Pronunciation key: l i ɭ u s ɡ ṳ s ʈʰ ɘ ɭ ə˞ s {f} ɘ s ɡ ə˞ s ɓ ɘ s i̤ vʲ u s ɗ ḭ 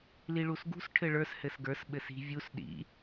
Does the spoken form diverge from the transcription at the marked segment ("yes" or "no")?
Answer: yes